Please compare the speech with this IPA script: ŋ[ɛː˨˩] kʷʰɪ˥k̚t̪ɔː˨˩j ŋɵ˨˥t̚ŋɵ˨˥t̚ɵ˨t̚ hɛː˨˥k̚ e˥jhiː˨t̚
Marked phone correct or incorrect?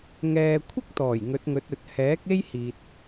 incorrect